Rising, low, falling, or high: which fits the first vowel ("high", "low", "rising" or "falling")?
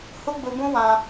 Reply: high